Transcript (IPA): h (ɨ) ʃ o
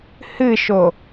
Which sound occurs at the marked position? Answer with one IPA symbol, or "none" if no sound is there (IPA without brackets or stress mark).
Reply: ɨ